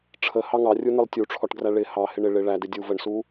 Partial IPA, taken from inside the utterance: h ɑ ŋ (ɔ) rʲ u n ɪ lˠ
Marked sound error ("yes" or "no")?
yes